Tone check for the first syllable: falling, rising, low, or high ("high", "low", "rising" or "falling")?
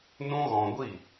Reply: high